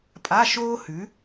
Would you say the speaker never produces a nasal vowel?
yes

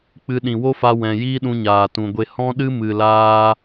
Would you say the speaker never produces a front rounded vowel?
yes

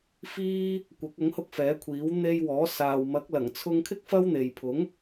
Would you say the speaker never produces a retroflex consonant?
yes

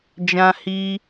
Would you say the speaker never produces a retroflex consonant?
yes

